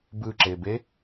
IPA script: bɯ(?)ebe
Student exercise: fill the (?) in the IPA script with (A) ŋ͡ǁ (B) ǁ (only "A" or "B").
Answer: B